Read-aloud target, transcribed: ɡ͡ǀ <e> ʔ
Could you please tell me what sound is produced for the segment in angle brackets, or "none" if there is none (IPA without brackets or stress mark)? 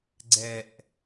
ɛ